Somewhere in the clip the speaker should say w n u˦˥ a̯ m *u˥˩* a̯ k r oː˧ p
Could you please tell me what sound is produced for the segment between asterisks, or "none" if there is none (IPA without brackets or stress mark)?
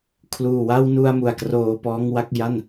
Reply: u˨˩